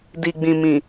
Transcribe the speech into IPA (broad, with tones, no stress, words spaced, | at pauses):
di˨ɡ͡bĩ˨ mĩ˨